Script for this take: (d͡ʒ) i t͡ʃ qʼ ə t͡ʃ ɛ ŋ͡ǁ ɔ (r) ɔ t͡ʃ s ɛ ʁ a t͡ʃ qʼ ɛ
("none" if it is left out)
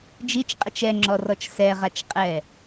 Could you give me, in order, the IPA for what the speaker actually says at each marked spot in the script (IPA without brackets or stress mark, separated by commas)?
d͡ʒ, r